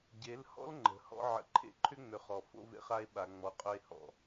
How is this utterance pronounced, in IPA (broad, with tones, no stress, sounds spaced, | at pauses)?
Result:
ɟ e˨˦ l h ɔ̰˦ l ŋ͡ǃ ə̤˨˦ h ɔ̰˦ ʕ ə̰˨ ǃʰ ḛ˦ ǃʰ ʏ˦ ŋ͡m ʏ˨ χ ɔ˨ f o̰˦ v ḛ˦ χ a˦ e̯ ɓ a˨ ŋ͡m ɔ˨ qʼ ɵ˦ e̯ h ɔ̰˨